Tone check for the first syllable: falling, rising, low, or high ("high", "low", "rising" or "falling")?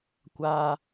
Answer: high